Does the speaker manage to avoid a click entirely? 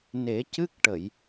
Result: yes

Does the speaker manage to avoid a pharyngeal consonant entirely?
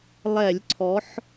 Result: no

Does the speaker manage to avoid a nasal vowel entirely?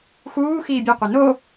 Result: yes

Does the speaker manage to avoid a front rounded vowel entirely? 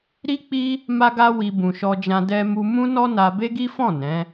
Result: yes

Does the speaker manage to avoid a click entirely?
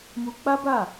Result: yes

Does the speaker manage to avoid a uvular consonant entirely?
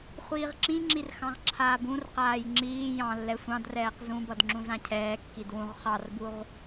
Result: no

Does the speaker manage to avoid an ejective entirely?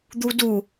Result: yes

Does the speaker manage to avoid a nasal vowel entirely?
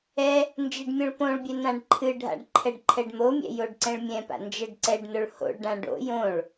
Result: no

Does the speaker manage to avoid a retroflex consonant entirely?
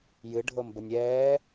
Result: no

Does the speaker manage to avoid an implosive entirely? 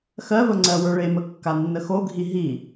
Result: yes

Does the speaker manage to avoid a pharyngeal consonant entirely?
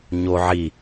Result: no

